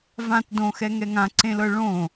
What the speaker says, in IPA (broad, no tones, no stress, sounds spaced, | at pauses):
v ã t d õ x ɛ ŋ ɛ ŋ ã ǀ ẽ l ɤ ɭ õ